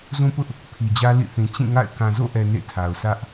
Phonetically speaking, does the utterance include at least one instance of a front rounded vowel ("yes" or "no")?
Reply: no